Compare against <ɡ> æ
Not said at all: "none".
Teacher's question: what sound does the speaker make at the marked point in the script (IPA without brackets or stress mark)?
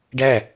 ɖ